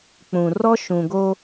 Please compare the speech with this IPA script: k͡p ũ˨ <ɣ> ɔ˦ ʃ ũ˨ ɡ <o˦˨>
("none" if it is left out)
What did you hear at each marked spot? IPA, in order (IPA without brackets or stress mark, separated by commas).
r, o˦